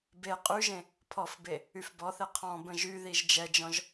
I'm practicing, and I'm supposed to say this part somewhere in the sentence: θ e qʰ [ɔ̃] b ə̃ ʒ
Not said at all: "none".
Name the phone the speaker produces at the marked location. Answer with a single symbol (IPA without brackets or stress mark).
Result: ɔ̃